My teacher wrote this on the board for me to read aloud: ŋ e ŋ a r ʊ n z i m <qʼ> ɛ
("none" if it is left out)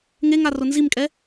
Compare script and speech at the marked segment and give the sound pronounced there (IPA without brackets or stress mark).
kʼ